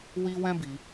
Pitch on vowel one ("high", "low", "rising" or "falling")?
high